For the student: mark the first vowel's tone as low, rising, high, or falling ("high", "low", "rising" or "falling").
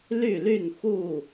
falling